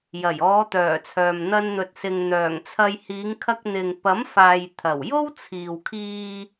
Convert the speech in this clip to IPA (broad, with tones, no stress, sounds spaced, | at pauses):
j ɐ˨˩ j ɔː˨˧ t̪ œː˨˩ t͡sʰ œː˨ m n̪ ɐ˧ n n̪ ɵ˨ t̚ s ɪ˨ ŋ n̪ œː˨˩ ŋ t͡sʰ ɐ˧ j h iː˨˧ ŋ kʰ ɐ˧ k̚ n̪ ɪ˨ ŋ p ɐ˨˥ m f aː˨ j t̪ʰ ɐ˨˩ w j o˥ w t͡sʰ iː˨ w kʰ iː˧